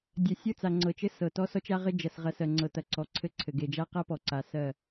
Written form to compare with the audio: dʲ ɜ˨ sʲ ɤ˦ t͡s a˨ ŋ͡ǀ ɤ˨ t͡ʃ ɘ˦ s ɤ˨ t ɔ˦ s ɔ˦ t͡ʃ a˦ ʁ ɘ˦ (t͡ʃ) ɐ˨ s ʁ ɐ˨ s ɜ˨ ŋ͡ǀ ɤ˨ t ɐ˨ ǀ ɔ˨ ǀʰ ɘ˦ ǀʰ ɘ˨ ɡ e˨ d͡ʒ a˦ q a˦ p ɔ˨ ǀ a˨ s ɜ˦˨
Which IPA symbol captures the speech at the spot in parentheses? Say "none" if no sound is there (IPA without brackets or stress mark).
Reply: d͡ʒ